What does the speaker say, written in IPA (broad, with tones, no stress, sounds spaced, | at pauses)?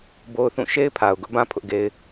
b o˦ ʊ̯ θ ũ˦˨ ʃ e˦ ɪ̯ pʰ a˨ ʊ̯ ɡ ʊ˦ ʔ b ã˦ pʰ ʊ˦ ʔ ɡ e˦ ɪ̯